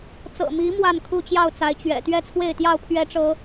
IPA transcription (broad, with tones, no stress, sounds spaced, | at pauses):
t͡s ɤ̰˨˩ m i˨˦ m w a˥˨ n kʰ u˥˨ t͡ɕ j ɑ˥˨ ʊ̯ t͡s a˨˦ ɪ̯ t͡ɕ ɥ ɛ̰˨˩ t̪ ɥ ɛ˥˨ t͡sʰ w e˥˨ ɪ̯ t̪ j ɑ˥˨ ʊ̯ pʰ ɥ ɛ˦ ʈ͡ʂ ɤ˨˦